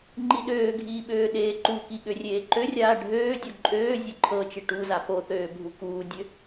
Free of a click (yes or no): no